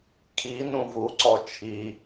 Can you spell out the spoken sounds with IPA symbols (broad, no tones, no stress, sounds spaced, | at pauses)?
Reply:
kʰ i n ũ v u ǀ ɔ t͡ʃʰ i